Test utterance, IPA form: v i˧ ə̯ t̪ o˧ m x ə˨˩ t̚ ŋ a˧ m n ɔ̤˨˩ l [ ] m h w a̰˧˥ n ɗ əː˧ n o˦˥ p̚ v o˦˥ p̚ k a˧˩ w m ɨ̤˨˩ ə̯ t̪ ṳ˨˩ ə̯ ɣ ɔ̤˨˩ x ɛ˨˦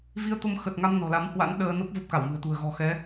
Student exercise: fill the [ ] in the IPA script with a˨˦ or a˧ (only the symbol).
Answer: a˨˦